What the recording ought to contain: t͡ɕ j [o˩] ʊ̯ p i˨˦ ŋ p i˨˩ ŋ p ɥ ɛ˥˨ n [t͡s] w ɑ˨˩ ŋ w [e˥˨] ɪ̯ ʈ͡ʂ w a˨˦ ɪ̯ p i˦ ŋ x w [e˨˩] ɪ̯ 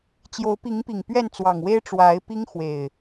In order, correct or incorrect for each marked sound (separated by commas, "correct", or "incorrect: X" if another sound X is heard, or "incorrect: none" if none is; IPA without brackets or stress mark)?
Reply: incorrect: o˨˦, correct, incorrect: e˦, correct